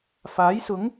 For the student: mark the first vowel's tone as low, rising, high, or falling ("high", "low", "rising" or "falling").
rising